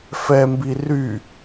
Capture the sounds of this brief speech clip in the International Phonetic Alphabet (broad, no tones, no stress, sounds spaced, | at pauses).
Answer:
f ɛ m b i r y